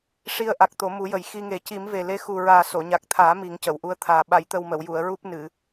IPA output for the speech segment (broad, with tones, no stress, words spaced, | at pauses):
ʂi˧ə̯ʔa˨˩k̚ t̪o˨˩˦mu˨˩˦jə˨˩j xi˧ŋe˨˩˦ ci˨˩˦mve˨˩ le˧xu˨˩ɹaː˨˩ so˨˩˨ɲa˨˩k̚t̪ʰaː˨˩˦ mi˨˩˦ŋcə˨˩˨w ʔu˧ə̯t̪ʰaː˨˩ ɓa˨˩˨jt̪ə˨˩w mə˨˩˨wju˨˩˨ə̯ ɹu˦˥p̚nɨ˨˩˨